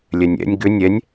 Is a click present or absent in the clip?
absent